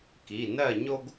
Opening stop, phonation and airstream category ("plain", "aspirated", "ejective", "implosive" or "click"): plain